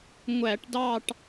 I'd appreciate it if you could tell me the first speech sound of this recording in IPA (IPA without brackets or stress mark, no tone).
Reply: ŋʷ